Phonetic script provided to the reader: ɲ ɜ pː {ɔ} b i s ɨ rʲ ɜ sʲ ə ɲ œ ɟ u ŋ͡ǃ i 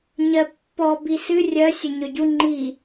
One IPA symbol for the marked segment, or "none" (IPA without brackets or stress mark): ɔ